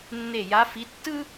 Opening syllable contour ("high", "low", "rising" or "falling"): falling